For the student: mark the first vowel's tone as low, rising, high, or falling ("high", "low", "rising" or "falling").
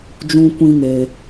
high